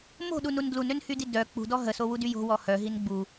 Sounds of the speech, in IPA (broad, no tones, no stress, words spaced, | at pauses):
mo̤ɗunun dlunønhydi dœ k͡pṳdɔ ɦəsowudy jo̤wɔ hœɦin ɡ͡bu